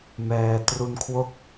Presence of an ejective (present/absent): absent